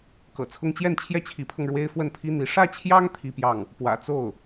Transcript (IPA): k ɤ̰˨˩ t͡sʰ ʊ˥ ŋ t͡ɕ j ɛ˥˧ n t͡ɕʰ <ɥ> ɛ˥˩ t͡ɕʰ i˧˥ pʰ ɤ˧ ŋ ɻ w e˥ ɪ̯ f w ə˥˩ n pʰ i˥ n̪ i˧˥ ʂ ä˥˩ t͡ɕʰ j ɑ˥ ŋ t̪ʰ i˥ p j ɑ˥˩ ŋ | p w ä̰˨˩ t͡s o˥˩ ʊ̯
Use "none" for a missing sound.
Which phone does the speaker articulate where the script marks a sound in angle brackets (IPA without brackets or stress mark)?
j